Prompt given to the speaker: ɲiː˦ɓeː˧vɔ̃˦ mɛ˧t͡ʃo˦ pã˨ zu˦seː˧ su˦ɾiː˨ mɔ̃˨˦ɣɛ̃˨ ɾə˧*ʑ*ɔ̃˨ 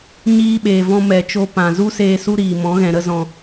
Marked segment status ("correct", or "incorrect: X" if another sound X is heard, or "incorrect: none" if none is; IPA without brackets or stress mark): incorrect: z